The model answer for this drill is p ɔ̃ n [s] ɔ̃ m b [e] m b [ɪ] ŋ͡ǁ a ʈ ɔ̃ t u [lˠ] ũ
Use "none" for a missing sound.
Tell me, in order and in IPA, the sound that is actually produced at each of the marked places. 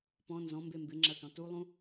z, e, ɪ, lˠ

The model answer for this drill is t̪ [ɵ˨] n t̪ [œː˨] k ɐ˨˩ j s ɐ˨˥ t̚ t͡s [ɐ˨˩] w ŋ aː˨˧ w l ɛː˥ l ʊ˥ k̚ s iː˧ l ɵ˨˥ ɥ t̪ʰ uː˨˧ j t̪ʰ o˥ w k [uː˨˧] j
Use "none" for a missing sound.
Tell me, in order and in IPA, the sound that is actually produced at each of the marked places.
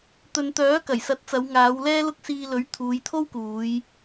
ɵ˨, œː˨˥, ɐ˨˧, uː˨˧

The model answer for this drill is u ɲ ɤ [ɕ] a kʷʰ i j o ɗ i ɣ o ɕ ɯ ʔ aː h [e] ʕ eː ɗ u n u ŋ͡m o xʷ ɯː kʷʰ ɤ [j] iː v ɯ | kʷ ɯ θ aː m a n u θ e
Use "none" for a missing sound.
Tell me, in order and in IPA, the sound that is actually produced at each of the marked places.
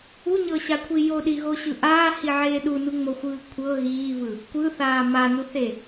ɕ, i, ɣ

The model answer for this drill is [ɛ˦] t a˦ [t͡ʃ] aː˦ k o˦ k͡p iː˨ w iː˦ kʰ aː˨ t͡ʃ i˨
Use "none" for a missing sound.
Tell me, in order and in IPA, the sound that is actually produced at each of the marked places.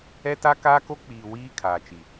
ɛ˦, k

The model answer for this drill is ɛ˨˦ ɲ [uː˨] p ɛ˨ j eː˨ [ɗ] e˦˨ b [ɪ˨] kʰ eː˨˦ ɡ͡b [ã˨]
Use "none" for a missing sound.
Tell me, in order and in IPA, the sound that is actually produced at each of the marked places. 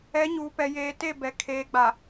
uː˨, t, ɛ˨, a˨

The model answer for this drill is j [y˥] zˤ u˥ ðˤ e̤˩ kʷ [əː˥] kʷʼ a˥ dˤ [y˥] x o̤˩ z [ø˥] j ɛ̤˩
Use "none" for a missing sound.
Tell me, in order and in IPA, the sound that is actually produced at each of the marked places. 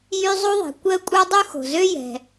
y˥, əː˥, u˥, ø˥

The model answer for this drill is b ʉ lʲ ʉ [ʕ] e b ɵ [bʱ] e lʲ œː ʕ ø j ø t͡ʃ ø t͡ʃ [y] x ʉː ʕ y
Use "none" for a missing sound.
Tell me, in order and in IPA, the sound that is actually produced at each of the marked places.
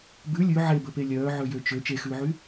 ʕ, p, e

